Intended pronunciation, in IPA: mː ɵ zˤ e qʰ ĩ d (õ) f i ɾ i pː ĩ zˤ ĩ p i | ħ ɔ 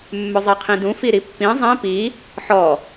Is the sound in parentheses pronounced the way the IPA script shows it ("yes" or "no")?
no